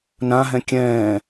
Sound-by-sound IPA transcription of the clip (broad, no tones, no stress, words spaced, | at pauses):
nãɦɛ̃ kʲɛ̃ː